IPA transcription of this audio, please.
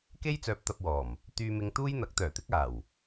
k e˥ j t͡s œː˧ p̚ t̪ ɐ˧ p̚ w ɔː˨˩ m | t̪ yː˧ m ɪ˧ ŋ t̪ uː˥ j n̪ ɐ˨˥ k̚ t̪ œː˨˩ t̪ ɪ˥ k̚ aː˨˩ w

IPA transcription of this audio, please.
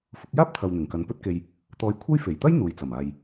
f ʊ˨˥ k̚ j aː˥ p̚ t̪ʰ ɐ˨ w n̪ ɪ˨˩ ŋ k ɐ˨˧ n p ɵ˥ t̚ k e˧ j | t̪ ɔː˧ j kʷʰ ɐ˥ j f e˨˩ j t̪ ɐ˥ j n̪ uː˨ j t͡s ɐ˨˩ m aː˨ j

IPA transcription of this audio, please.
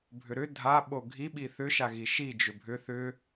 bʱ ʏ ɾ ʏ dʱ a ɓ o ɡʱ i ɓ i θ ʏ ʃ a ɣ i ʃ i d͡ʒ ʏ bʱ ʏ θ ʏ

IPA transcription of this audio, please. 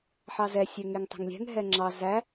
ħ ɑ z ɛ sʲ ø ŋ e ŋ tˤ ɛ̤ ŋ lʲ ɛ̤ ŋ ɦ ɛ ŋ͡ǁ ɑ z æ

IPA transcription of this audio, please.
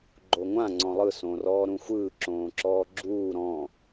ɡ͡ǃ o ŋʷ ã ŋ͡ǀ ɔ̃ lˠ ɯ s õ r ɔː ɾ ũ xʷ ɯː ǁ õː ǁ ɔː ɡ͡ǁ uː ɾ ɔ̃

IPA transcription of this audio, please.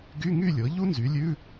ɡ y˧˥˧ ŋ y˥˨ lʲ ɤ˩˥ ʎ u˥ n z y˩˥ lʲ ʉ˧˥˧

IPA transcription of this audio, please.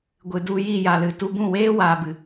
ɡʷ ɨ˨ d u˧ j i˦˨ j a˨ l ɨ˨ t u˧ b ũ˦˨ w eː˦ w aː˨ b ɨ˨

